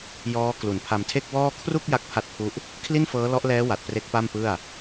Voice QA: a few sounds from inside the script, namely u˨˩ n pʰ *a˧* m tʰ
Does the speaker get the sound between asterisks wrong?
no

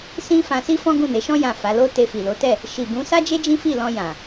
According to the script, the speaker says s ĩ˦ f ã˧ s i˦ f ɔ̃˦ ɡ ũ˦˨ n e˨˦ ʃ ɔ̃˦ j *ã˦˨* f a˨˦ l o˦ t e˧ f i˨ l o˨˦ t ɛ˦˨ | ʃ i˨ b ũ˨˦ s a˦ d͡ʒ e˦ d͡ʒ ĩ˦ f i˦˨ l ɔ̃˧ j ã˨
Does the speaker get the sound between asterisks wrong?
no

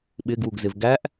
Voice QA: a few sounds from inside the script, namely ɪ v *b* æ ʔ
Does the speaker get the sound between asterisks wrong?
yes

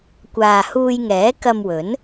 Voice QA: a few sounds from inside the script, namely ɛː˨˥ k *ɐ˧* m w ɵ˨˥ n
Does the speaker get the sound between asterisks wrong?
no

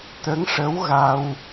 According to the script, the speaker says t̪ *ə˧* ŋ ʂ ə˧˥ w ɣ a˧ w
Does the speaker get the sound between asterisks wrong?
yes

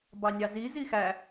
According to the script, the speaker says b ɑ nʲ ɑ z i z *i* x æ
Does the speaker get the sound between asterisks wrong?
no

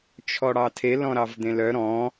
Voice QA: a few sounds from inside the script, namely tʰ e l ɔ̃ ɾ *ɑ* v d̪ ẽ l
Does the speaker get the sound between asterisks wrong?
no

